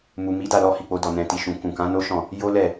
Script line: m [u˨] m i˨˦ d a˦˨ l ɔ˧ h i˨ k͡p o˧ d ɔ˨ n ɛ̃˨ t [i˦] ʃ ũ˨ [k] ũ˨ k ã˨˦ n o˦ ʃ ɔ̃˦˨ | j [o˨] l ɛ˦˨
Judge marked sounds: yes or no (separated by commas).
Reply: yes, no, yes, no